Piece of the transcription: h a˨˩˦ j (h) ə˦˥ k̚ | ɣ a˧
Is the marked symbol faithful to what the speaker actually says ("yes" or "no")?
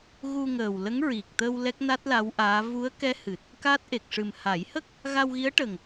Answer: yes